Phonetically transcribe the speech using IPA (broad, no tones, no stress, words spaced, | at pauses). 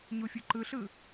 ɲufʲuǃɯɬɯ